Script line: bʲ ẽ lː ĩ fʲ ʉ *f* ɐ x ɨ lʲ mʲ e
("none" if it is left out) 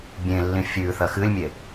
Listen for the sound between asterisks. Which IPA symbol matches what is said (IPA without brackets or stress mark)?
θ